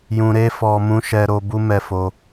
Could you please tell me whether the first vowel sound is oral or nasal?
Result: nasal